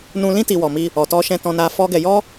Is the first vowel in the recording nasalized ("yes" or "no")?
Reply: yes